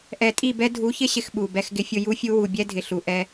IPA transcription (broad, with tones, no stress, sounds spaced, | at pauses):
ʔ ɛ˨ tʼ i˦˨ b ɛ˦ dʱ u˨˦ ç ɪ˦ ɕ ɪ˨ x ɓ u˨ b ɛ˦ x ɡ ɪ˦ fʲ ʊ˦ j u˦ fʲ u˦ w u˨ bʲ ɛ˦ dʱ ɪ˨ ɬ u˨ ʔ ɛ˦